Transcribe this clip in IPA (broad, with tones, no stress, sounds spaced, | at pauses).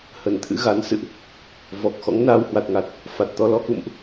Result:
h ə˧˩ n t̪ʰ ɨ̰˧˥ ɣ a˨˦ n s ɨ̰˧˨ ʔ | v ɔ˨˩ k̚ x ɔ̰˧˥ ŋ n aː˧ w h w a˨˩ t̚ ŋ a˨˩ t̚ | f a˨˩ t̚ t̪ ɔ˧ l ɔ˧ k ṵ˧˨ m ʔ